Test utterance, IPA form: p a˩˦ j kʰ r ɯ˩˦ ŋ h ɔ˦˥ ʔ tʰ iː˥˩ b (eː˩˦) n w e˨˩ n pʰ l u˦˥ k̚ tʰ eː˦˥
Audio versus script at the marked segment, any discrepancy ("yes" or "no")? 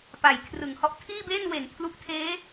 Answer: yes